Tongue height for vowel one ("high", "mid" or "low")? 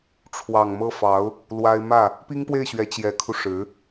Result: low